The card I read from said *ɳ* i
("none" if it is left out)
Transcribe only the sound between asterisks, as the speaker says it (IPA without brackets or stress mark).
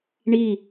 ɳ